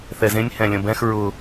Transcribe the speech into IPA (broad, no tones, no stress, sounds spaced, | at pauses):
θ ɛ z ẽ nʲ h ɛ̃ lʲ ə̃ b ɛ̃ x ɹ ʊ